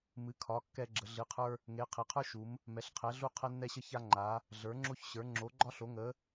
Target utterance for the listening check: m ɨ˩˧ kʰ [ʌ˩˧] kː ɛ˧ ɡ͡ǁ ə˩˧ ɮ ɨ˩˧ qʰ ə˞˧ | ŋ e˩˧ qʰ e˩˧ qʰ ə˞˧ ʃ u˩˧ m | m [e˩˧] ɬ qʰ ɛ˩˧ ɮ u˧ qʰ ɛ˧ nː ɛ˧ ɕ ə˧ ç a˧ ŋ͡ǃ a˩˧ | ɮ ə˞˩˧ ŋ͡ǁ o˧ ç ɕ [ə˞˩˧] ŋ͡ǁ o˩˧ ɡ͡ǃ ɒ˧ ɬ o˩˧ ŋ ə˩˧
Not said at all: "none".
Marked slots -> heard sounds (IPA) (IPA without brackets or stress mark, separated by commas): ɒ˩˧, ɛ˩˧, ə˞˩˧